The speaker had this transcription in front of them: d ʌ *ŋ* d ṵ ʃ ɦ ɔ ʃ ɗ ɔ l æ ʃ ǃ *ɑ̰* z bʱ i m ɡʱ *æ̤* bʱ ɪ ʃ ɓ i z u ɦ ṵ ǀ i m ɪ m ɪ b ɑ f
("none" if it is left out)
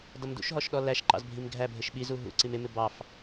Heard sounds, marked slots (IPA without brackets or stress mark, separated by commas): m, ɑ̰, æ